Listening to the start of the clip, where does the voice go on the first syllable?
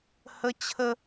high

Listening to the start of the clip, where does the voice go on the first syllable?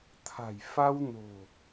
low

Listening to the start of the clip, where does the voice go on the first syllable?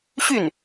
falling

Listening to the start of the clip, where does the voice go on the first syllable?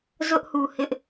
high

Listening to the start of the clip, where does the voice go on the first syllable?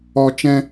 high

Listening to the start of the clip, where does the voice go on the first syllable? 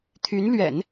rising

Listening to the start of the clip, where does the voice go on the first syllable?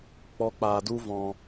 high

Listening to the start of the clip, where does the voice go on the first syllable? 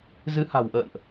rising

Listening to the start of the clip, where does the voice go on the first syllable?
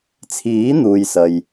rising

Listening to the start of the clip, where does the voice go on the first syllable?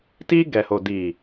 high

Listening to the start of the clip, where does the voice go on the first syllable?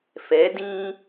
rising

